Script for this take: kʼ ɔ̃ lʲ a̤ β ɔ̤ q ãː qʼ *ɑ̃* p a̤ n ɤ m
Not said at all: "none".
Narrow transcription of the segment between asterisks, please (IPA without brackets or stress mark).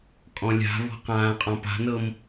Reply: ɔ̃